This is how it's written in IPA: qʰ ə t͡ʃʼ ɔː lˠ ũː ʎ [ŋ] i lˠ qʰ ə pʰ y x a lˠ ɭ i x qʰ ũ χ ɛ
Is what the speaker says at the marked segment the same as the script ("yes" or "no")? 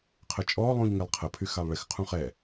yes